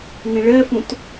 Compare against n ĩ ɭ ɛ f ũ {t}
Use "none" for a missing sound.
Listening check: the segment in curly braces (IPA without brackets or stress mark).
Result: t